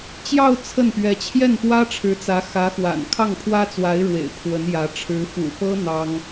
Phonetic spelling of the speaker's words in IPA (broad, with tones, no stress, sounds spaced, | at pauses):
t͡ɕ j ɑ˥˧ ʊ̯ t͡sʰ ə˥˩ n p ɥ ɛ˧˥ t͡ɕʰ j ɛ˥˩ n p w ä˥ ʈ͡ʂʰ ɻ̩˧˥ t͡s ä˧˥ x ä˧˥ x w a̰˨˩ n kʰ ɑ˥˩ ŋ pʰ w ä˥ t͡s w a˧˥ ɪ̯ ɻ w ḛ˨˩ ɪ̯ pʰ w ə˧˥ n j ä˧˥ ʈ͡ʂʰ ɻ̩˧˥ f ṵ˨˩ p ɤ˥ n̪ ɑ˥ ŋ